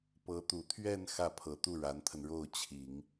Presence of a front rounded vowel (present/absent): absent